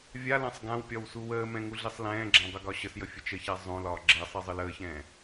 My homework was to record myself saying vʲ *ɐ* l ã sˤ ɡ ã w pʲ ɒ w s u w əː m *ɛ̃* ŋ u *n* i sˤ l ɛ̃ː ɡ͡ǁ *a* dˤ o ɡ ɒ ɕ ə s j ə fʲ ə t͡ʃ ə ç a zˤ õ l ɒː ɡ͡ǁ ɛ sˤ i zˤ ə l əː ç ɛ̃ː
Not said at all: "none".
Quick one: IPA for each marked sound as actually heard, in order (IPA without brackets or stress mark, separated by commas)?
a, ɛ̃, ɮ, ã